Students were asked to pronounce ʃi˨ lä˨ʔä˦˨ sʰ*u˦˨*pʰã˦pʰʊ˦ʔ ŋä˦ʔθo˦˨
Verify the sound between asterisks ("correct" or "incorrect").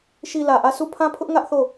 correct